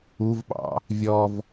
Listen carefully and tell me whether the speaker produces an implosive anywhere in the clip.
yes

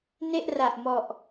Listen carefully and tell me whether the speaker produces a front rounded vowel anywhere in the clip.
no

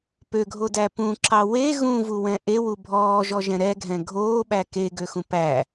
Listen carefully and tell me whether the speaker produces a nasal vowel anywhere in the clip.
yes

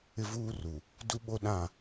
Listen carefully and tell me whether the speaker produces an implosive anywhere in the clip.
yes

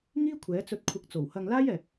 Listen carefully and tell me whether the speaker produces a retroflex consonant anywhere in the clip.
no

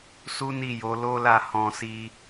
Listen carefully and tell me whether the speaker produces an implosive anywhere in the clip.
no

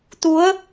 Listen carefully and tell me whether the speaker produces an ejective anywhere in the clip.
no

